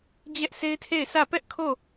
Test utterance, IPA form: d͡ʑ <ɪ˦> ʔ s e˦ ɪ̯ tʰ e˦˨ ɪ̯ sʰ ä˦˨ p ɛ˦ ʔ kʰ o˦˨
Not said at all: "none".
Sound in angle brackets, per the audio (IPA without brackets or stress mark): ɛ˦